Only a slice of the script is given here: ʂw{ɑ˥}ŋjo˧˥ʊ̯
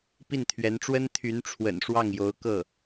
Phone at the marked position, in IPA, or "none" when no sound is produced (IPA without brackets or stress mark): ɑ˥˩